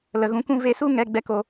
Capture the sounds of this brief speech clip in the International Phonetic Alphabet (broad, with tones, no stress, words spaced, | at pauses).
lə˨ɣũ˧kũ˦ ve˧su˦ ŋɛ˧ ɡ͡bɛ˦ko˧